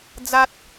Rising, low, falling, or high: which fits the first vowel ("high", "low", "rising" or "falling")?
high